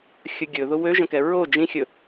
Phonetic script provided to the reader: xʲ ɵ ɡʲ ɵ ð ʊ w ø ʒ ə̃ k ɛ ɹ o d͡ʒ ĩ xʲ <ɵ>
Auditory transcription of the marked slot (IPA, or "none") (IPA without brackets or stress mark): ɵ